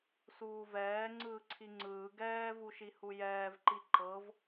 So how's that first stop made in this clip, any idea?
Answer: click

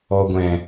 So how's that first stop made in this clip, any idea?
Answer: plain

